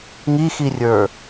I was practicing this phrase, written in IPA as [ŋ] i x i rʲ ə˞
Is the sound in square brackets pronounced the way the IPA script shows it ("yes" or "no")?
yes